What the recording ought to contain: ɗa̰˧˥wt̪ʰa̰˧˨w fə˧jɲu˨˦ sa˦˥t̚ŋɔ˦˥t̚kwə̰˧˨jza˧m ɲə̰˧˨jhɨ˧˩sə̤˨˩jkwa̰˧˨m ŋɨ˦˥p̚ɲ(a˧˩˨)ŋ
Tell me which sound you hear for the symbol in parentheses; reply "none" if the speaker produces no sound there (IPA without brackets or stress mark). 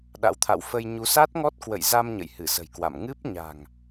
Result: a̤˨˩